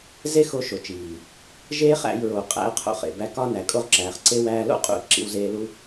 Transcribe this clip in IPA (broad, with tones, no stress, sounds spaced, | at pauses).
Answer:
z e˦ x o˧ ʃ o˨ t͡ʃ iː˨ | ʒ eː˦ χ æ̰˧ j ɹ o˨ qʼ æ̰˧ ə̯ qʰ o̰˧ χ ḛ˨ b æ˧ k ɒ˧ n æ˨ kʼ o˧ ʁ ǁ æː˨ χ ǀ e˧ w æː˧ l o̰˦ qʼ ṵ˨ ə̯ ǁ ḭ˧ w z eː˧ l u˦